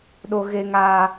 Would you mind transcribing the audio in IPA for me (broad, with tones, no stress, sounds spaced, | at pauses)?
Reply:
ɗ o˦ ɣ e˦ ŋ aː˦